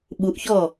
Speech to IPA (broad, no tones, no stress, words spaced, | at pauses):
ɓuʔçɔ